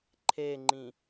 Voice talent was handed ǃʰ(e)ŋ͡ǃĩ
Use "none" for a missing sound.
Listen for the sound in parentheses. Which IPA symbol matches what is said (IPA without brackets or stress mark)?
e